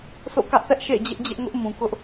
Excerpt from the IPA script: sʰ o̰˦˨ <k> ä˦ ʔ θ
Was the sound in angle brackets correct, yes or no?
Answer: yes